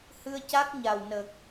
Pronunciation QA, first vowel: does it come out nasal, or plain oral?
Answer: oral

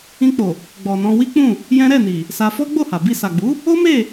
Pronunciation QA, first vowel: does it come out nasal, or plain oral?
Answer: nasal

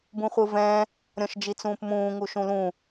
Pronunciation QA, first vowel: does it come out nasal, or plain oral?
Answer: nasal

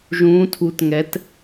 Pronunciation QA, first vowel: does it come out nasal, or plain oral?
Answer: nasal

